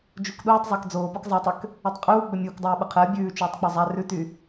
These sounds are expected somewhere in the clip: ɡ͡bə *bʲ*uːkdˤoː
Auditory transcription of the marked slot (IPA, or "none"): mʲ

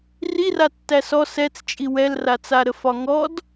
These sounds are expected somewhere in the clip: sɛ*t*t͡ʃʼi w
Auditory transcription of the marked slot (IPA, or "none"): t͡s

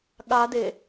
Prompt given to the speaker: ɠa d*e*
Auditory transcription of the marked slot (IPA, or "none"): e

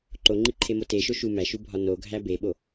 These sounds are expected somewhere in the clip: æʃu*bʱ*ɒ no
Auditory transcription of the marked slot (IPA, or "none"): bʱ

